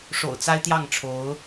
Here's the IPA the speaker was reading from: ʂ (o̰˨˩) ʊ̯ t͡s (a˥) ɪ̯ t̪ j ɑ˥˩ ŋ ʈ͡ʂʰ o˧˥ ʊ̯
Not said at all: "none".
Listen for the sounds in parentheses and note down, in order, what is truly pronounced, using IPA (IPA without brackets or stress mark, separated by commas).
o̰˨˩, a˥